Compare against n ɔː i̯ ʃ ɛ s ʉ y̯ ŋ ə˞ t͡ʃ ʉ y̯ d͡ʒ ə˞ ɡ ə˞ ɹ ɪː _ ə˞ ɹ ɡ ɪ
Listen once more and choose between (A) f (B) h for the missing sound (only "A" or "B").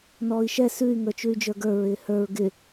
B